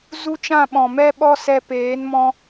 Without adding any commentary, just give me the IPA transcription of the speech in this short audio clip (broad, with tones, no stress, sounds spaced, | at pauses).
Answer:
z u˦ t͡ʃ ã˦˨ ɓ ɔ̃˨ m ɛ˦ ɓ ɔ˦ s ɛ˧ p eː˨˦ n m ɔ̃˧